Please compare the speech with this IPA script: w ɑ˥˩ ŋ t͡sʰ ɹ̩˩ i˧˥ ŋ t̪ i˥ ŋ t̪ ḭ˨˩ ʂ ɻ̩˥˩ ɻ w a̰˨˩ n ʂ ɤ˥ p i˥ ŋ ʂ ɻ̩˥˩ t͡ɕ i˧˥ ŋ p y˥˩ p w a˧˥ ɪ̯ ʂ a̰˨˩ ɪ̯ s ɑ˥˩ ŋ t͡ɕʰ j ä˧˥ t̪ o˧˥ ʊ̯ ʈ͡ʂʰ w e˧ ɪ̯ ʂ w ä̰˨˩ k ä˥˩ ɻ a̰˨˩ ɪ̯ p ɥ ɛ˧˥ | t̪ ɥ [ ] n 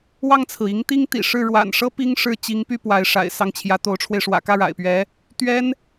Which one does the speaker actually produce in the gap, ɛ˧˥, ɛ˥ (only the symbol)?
ɛ˥